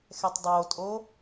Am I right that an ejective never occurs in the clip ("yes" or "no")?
no